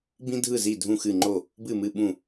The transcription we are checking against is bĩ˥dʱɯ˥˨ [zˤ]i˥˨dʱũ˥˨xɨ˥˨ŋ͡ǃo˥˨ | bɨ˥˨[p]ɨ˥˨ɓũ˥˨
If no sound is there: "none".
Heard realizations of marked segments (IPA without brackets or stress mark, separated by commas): z, m